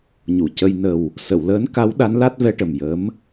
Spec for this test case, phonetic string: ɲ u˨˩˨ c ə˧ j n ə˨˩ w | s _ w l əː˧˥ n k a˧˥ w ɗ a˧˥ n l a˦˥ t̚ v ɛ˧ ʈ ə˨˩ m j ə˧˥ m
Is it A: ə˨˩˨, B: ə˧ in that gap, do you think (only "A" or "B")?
A